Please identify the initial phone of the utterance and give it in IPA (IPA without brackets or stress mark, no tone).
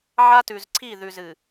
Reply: ʕ